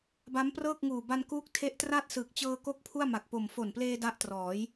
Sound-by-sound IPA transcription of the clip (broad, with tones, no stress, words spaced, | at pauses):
ba˦˥mprɤː˥˩k̚ ŋuː˨˩ba˧nkuː˦˥k̚ tʰe˦˥ʔtraː˥˩t̚sɯː˨˩k̚ t͡ɕɤː˧ko˦˥k̚ pʰu˥˩a̯ ma˨˩k̚po˨˩m fo˨˩npleː˧ da˦˥ʔ trɔː˩˦j